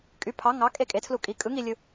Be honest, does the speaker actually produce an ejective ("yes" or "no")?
yes